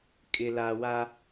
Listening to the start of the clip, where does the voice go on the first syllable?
low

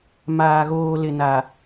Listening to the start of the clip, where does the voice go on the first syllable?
low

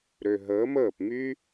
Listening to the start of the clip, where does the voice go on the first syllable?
low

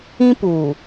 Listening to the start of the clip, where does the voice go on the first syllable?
high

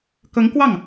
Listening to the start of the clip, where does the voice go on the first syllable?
rising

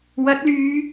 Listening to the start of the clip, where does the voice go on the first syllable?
rising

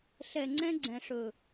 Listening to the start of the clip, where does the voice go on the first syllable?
low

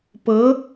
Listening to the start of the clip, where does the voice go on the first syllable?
rising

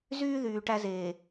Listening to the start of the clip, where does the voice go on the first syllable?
high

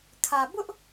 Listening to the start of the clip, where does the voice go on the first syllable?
low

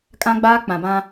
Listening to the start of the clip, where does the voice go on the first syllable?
high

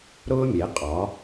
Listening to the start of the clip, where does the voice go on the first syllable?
high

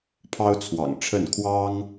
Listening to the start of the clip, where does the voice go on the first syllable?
high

